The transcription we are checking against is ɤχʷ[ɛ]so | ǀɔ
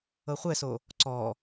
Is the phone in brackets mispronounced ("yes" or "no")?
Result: no